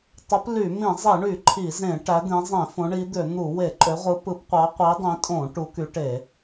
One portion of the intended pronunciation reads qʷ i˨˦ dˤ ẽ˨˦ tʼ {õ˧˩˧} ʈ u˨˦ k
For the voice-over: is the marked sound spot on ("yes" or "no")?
yes